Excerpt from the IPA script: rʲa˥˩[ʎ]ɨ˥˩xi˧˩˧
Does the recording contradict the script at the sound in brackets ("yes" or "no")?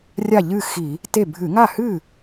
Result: no